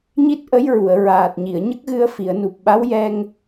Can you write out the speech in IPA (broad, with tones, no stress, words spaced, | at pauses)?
ɲi˦˥t̚ʔə˧˥jɹu˨˩˨ə̯ ɹaː˨˩t̚ɲi˨˩˨ə̯ ɲə˦˥k̚ɣɨ˧ə̯ fi˨˩˨ə̯nu˨˩p̚ ɓa˧˥wjɛ˧ŋ